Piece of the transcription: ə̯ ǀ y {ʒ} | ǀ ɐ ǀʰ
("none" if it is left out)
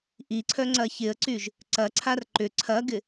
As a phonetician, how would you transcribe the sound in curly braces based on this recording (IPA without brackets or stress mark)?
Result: ʒ